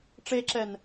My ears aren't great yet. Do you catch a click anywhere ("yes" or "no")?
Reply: yes